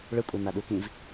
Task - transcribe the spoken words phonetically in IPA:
ɭ ɯ kʷʼ a n a ɗ u k ĩ v

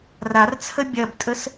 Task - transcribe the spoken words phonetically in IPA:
r a r t͡sʰ ə bʲ ɐ b tʼ ə s

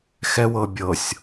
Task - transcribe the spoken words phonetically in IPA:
x ɛ w ɤ bʲ ɤ sʲ

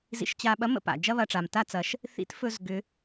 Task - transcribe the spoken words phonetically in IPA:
z ḭ˧ ʃ t͡ɕ a˧ ɓ ɐ˧˥ m ə̰˧ p a̰˩ d͡ʒ ɐ˥ β ɐ˧ ʈ͡ʂ a˩ m t a˥ t͡s ɐ˩˧ ʃ | θ ḭ˧˥ t f ɵ˧ z ɡ ʏ˩˧

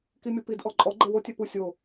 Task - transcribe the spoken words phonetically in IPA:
k i mʲ o p i d ʔ ɔ ǃʼ ɔ ɡ͡ǃ e w o tʲ ɛ p u sʲ o

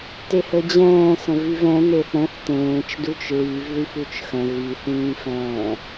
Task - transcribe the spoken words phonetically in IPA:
t e h ə d͡ʑ ɛ̃ː s ə̃ v y v ɛ̃ n e θ ɾ ə̃ θ t ẽː t͡ʃ d u t͡ʃ ɹ y v ð y f u t͡ʃ x ə̃ ɣ y θ ĩː f ɛ̃ː

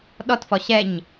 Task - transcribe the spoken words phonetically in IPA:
ɗ ɔ t f ɔ ɕ ɛ ɲ

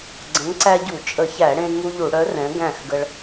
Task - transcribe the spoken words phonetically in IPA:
ɡ͡ǀ ə̃˨˥ ŋ ǀ æ˦ ɟ u˧˩˧ t͡ʃʼ ə˧˩˧ ç æ˧˩˧ ɽ ẽ˦ ŋ u˦ ʎ u˧˩˧ ɽ œ˨˥ r ɛ̃˨˥ ɡ æ̃˥˩ x ɡ ə˦ ɭ

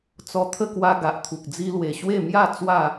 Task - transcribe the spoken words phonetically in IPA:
t͡s ɔ˧ t̪ʰ ə˥˧ k w a˧ ɡ a˨ ʔ t̪ʰ u˨ k̚ d͡z i˧ l w e˨˩ ɕ w e˥˧ m j a˥˧ t͡s w a˥˧

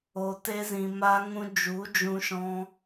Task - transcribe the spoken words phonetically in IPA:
o˨ t e˧ z ĩ˨ m aː˧ ŋ ũ˧ d͡ʒ u˨˦ d͡ʒ ũ˧ ʃ ɔ̃˧

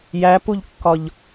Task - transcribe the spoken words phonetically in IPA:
j æ p u ʎ kː ɒ ʎ

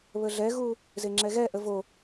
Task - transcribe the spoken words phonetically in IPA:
β ə ɮ ɛ ɣ u | z e ŋ͡ǁ ɛ ɣ ɛ ʔ ə v o

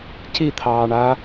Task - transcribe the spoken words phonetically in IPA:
c i t̪ʰ ɑː ɳ a

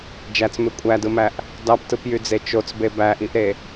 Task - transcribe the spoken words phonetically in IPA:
d͡ʒ æ t͡s m e kʷʼ æ d ɯ m æ ʔ | d ɑ p t ɯ p j y d͡z e t͡ʃ o t͡s b e b æ ʔ i ʔ ɾ e

